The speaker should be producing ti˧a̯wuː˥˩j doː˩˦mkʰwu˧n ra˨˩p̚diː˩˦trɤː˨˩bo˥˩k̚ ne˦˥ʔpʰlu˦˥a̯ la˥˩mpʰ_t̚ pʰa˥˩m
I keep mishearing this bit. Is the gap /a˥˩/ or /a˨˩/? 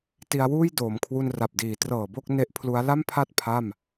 a˥˩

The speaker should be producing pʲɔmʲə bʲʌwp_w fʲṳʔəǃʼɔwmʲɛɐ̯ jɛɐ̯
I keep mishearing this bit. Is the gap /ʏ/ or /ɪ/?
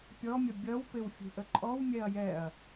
ɪ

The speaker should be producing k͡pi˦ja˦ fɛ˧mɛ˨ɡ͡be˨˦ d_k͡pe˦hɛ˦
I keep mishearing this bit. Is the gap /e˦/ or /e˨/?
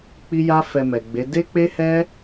e˦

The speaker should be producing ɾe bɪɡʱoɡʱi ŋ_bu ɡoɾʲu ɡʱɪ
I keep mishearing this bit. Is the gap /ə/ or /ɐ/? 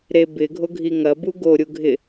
ɐ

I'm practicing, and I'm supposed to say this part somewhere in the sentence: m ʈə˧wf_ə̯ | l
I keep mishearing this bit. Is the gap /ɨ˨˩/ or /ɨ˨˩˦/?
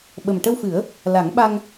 ɨ˨˩˦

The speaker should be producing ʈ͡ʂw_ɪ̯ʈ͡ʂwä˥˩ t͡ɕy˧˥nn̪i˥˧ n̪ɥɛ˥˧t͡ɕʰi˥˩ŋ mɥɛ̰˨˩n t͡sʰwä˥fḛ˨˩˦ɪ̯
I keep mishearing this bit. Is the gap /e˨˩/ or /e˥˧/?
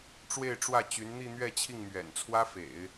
e˥˧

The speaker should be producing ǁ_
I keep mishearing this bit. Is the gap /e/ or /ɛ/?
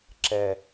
ɛ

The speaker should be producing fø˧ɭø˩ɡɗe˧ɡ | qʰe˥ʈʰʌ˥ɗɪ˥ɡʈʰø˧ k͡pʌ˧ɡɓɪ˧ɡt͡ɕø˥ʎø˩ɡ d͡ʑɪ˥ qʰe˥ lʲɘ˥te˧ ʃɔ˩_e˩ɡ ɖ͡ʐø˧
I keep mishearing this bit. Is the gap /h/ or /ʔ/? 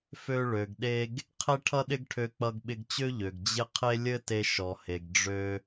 h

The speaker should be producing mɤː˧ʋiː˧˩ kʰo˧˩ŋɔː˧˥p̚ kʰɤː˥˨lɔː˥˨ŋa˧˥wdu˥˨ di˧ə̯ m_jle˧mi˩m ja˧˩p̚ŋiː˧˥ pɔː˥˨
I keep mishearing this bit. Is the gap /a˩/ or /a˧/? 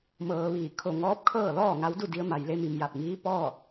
a˩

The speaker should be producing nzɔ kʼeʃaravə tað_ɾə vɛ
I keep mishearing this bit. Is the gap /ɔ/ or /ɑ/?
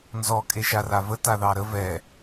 ɑ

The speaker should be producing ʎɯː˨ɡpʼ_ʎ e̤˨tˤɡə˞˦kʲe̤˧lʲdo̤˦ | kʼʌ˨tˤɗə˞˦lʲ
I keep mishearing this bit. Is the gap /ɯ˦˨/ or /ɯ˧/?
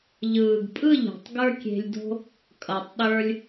ɯ˦˨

